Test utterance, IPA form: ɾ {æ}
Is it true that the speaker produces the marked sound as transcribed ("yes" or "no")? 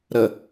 no